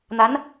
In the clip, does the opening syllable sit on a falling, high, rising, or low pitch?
rising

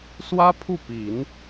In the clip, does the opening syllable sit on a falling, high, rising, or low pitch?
high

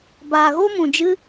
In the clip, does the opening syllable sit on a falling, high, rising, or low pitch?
low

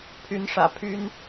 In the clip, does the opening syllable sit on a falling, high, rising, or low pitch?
rising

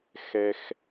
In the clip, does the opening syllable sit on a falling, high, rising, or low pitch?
low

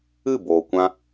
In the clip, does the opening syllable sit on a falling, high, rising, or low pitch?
falling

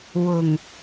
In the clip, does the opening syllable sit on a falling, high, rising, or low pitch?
low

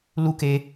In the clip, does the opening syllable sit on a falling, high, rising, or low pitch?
high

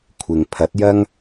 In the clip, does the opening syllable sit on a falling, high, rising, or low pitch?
low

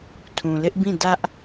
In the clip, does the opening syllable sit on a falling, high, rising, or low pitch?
low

